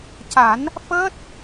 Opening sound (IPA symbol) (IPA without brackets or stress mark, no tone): c